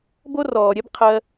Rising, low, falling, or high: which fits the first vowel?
high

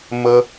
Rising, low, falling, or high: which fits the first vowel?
high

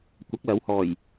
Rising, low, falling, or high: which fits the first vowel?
rising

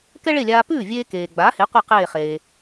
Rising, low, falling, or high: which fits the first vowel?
high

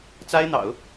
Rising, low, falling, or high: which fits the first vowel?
high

